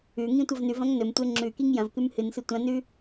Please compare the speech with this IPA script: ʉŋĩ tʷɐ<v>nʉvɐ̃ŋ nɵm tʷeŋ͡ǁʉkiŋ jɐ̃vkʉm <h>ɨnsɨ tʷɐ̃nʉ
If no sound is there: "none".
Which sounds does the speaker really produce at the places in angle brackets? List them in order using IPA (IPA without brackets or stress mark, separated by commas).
v, h